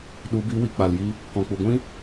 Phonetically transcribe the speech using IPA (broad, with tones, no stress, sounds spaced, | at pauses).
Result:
ɗ u˨˦ b i˨˦ w i˨ k͡p a˨ l j i˧ | k ɔ̃˨ k͡p u˨ ɡʷ ĩ˦